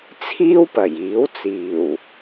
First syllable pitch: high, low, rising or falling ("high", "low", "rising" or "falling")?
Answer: high